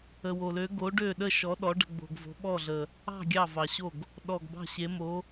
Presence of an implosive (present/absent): present